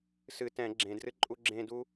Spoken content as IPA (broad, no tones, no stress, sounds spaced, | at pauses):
s ɨ t ɛ̃ ɡ͡ǁ ẽ d r ɨ ǃʼ u ɡ͡ǁ ẽ d u